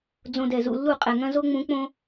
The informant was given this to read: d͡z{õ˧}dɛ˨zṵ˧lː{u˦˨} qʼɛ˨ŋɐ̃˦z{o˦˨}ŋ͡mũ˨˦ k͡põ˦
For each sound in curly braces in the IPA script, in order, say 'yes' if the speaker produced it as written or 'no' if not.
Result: yes, yes, no

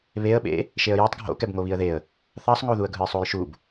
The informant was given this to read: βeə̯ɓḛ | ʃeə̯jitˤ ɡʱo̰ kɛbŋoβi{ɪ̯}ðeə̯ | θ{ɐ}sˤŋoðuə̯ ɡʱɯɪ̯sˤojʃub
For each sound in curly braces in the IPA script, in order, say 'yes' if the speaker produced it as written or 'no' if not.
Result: no, no

